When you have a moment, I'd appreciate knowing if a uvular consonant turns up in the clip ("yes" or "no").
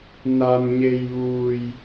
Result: no